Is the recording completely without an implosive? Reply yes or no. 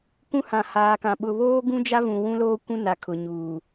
no